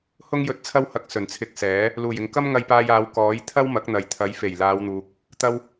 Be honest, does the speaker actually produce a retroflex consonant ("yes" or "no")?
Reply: no